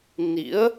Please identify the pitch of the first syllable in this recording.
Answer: rising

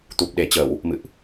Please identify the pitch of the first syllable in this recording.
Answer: low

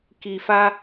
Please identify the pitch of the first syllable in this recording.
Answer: low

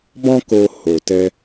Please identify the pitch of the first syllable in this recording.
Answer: high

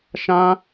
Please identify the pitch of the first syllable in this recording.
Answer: high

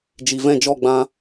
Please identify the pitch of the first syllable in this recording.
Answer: low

